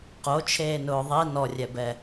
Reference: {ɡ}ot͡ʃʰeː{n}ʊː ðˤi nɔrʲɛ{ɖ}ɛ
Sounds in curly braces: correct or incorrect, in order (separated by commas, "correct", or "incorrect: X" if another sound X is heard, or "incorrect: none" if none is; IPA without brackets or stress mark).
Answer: incorrect: q, correct, incorrect: b